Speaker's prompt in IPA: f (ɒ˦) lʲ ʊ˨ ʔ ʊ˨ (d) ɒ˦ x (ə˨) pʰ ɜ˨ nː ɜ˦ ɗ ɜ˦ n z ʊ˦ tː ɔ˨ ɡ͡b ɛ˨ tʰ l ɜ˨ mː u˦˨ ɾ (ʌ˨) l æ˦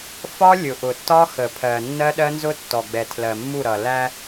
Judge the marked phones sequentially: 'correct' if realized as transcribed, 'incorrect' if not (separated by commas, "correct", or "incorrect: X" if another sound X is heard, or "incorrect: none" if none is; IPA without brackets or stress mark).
correct, incorrect: tː, correct, correct